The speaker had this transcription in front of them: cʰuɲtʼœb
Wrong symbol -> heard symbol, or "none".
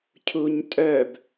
none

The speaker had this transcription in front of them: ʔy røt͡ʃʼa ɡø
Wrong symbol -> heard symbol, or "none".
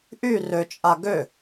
none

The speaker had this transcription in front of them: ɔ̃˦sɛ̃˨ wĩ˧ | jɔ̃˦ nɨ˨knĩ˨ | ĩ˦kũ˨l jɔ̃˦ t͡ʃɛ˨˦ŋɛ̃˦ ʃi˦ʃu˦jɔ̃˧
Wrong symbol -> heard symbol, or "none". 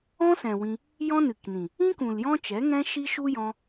none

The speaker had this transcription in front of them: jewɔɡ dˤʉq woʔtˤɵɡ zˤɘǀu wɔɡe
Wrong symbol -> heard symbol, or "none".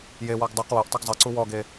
none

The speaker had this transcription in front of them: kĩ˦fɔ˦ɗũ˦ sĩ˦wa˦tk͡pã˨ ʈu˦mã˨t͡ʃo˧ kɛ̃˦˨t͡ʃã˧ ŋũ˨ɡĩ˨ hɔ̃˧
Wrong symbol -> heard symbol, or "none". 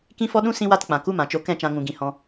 ʈ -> k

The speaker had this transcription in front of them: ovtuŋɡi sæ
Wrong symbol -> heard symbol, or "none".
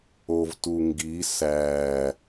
none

